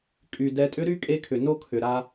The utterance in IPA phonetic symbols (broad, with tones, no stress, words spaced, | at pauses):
kʼy˨ dɛ˨tʼʏ˦ɾy˦ kʼe˦kʰʏ˨ no˦kʰʏ˨ ɾa˦